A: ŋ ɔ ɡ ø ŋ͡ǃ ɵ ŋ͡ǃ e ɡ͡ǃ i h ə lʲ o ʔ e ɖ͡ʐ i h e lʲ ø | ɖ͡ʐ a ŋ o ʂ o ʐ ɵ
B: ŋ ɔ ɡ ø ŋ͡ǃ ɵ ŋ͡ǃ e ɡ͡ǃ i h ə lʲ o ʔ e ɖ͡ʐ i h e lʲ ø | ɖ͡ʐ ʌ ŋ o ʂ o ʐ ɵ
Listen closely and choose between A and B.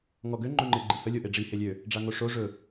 A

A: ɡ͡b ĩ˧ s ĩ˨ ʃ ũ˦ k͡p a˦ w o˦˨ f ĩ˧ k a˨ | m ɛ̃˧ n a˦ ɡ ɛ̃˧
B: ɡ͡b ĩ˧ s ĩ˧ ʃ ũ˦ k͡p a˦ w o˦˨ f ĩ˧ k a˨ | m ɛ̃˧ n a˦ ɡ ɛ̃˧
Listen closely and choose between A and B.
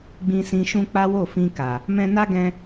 B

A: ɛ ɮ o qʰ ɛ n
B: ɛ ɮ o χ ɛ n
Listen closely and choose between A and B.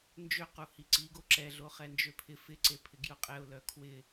B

